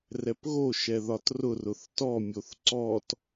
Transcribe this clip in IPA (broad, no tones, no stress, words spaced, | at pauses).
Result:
rɛpɣo ʃɛðɒtrʊ rʊθtɔ mʲoθǀɔt